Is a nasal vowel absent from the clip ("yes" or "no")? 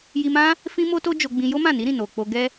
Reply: no